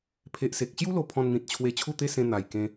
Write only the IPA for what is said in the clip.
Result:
pʰe˨ʔse˨k̚ɕju˦lo˧ pʰɔ̃˧nn̪ĩ˨t̚t͡ɕʰwe˧ t͡ɕʰu˥˧t̪e˥˧sẽ˧ n̪a˨˩jkẽ˧

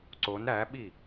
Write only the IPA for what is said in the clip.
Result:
ǀon ɾæɓi

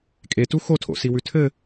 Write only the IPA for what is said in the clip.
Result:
kʼetu xotʰo̰siwʉ tʰɘ

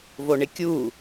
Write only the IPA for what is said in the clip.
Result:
voɳɪkʲu

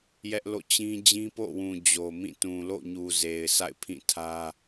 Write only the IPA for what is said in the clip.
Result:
jɛ˦ʔlo̰˦˨ t͡ɕĩ˦ d͡ʑĩ˦po̰˦˨wũ˨ d͡ʑo˨mĩ˦˨ tũ˨lo̰˦˨ɲu˨ ze˨ɪ̯ sa̰˦˨ɪ̯pʰĩ˦˨tʰä˦

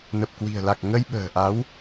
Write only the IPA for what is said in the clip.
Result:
nə˨˩p̚kwi̤˨˩ə̯la˨˩k̚ ŋə˧jɓə̤ː˨˩ʔa˨˦w

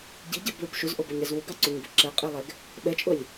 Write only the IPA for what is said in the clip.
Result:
ɟiɟɛbɭub ʃuzʔobʊɲɾɛz wuɡɑǀuɲbʊ ǁɛqʼilˠɛɡ | ɓɛt͡ʃʼʊlʲ

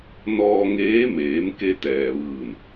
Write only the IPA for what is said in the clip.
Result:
nɔː˧ŋeː˧˥ meː˩˧mke˧ t̪ɛː˩ʋɯː˧˩n

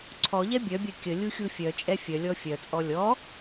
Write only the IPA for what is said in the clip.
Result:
ǀʰɔʎɛ bʲœbʲœ kʲə lʲuxʲufʲœt͡ʃʼɛ fʲœlʲɔ fʲœt͡sʼɔ lʲɔ

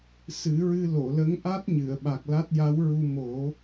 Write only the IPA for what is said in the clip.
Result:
sɨ˨˩˦ɹɨ˧ lo˨˩˨ lə˧˥ŋʔa˦˥t̚ɲɨ˨˩˨ə̯ ɓa˨˩k̚la˦˥t̚ja˧˥wɹu˧ mo˨˩˦

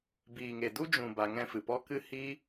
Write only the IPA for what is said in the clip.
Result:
biː˨ŋe˨du˦ d͡ʒũ˨ ba˧ŋɛ̃˦fɨ˨ pɔ˧kɨ˧hi˧

